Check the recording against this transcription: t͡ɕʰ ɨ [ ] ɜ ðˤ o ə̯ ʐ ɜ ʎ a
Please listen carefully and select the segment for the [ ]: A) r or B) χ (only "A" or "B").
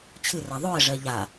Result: A